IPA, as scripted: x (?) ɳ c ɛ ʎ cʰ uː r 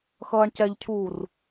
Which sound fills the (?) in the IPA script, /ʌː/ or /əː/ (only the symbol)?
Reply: ʌː